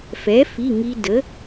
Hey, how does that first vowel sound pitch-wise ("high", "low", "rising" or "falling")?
rising